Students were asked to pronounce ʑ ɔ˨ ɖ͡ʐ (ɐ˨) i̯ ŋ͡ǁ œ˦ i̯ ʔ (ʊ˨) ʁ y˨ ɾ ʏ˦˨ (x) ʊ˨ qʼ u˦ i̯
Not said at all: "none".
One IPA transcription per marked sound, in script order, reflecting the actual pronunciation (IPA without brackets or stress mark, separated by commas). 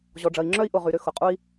ɐ˨, ʊ˨, x